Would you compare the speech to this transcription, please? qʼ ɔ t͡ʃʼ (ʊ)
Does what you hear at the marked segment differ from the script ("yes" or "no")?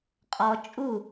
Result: yes